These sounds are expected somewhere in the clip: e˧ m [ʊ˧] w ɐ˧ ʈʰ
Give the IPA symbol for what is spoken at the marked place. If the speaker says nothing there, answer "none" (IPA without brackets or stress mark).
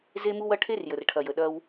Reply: u˧